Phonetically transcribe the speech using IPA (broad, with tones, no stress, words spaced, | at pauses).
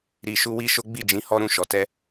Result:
ɾi˧ʃu˦ wi˦ʃo˦ ɡ͡bi˦˨d͡ʒĩ˨˦ hɔ˦ɾũ˧ʃɔ˨ tɛ˧